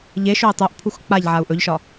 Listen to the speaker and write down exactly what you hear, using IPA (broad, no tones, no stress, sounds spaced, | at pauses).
ʎ e ʃ ɵ i̯ tˤ o ʔ pʰ u x k͡p a ʎ ʕ a u̯ ʔ ɵ ʎ ʃ ɒ